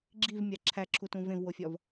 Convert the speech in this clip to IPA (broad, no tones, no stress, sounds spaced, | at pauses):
ɡ͡ǁ i v mʲ a ǁʰ æ ǁʰ u t ũ v ẽ v w o fʲ ɒ v